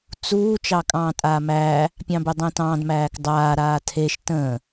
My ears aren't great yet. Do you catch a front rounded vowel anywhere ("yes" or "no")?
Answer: no